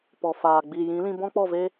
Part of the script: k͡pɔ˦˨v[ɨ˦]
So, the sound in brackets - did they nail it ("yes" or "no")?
no